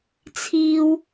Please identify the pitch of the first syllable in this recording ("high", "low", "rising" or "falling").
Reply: high